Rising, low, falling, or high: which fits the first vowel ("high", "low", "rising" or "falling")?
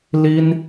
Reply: high